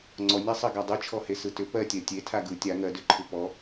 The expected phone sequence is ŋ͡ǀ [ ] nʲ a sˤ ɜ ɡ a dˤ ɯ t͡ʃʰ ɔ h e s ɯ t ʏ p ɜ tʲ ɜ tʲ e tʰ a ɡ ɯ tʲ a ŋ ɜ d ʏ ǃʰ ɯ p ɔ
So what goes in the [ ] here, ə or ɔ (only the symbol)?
ɔ